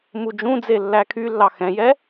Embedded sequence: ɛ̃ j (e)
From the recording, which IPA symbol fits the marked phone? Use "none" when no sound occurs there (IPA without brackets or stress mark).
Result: ɛ